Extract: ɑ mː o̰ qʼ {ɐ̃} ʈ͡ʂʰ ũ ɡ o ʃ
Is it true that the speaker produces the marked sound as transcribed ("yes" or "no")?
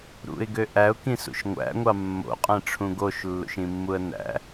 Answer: no